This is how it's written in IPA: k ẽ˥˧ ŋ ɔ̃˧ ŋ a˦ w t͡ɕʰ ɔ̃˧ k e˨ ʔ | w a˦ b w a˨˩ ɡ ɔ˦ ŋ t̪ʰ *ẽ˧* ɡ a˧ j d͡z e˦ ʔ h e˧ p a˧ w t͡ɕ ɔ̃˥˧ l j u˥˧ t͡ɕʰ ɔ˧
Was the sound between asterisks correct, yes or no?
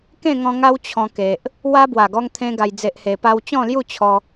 no